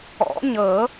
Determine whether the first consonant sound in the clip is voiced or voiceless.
voiced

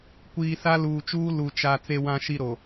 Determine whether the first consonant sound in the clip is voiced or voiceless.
voiceless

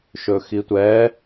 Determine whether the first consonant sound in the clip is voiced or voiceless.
voiceless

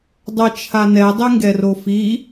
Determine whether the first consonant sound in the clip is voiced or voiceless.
voiced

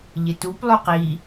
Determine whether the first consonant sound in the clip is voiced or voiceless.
voiced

